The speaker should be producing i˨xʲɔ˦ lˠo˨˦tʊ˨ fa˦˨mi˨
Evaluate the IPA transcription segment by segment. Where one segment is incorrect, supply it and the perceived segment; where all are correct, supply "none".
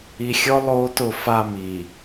none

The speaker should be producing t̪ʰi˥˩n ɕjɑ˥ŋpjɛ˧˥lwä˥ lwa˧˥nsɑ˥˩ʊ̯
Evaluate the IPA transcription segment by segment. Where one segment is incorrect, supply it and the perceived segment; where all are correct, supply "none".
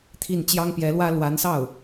ɕ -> t͡ɕ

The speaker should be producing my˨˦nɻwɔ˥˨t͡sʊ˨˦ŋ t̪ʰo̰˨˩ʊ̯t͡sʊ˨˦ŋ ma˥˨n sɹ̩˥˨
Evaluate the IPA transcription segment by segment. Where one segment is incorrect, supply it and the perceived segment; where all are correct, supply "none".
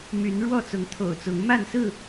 none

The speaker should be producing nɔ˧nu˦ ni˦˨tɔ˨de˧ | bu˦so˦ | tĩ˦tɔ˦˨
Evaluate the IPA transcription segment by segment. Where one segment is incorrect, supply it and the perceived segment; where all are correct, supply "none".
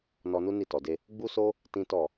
b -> ɡ͡b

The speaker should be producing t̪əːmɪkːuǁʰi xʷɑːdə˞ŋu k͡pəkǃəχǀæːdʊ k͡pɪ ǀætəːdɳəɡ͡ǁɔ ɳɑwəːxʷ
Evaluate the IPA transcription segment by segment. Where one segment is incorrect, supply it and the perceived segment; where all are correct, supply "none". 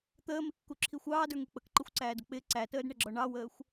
χ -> xʷ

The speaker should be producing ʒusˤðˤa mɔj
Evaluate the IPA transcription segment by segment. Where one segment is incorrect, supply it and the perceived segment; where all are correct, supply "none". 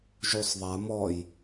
none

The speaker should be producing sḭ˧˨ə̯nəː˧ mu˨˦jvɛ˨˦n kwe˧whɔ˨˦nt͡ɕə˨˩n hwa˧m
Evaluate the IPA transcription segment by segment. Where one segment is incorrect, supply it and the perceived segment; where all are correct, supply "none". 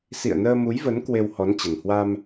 ɛ˨˦ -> ə˨˦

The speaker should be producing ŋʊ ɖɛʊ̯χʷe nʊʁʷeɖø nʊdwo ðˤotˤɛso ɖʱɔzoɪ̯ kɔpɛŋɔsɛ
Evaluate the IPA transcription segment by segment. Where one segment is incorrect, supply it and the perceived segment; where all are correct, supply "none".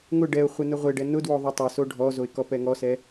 ø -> ɛ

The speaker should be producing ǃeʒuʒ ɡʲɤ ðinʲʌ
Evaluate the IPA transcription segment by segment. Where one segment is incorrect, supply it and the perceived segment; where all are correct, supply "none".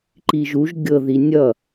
e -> i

